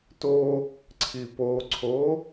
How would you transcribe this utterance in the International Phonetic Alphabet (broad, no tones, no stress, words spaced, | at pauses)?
to | ǀʰipoǀʰo